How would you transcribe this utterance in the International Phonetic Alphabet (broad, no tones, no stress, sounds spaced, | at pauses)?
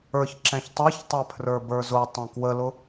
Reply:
ə˞ ç ǁ ɛ̃ ç tˤ ə˞ ç tˤ ɛ pʰ r ə˞ b ə˞ z ʊ tˤ ɛ̃ k w ə l ʊ